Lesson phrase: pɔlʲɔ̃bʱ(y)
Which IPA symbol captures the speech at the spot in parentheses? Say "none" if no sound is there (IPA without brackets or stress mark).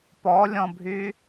y